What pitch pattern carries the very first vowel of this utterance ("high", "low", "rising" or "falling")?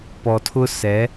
low